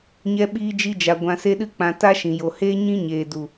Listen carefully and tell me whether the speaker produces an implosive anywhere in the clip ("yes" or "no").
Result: yes